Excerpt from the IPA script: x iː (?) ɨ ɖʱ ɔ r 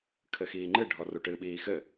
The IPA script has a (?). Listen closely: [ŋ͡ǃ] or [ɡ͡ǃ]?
ŋ͡ǃ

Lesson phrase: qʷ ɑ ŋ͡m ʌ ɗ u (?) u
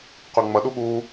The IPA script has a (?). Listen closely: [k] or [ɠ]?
ɠ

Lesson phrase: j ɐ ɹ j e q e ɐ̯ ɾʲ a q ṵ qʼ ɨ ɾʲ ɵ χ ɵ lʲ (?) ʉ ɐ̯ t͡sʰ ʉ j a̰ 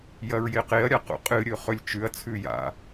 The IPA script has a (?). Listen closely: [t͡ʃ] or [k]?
t͡ʃ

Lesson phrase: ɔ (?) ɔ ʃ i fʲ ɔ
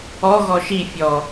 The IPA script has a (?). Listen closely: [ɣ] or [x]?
ɣ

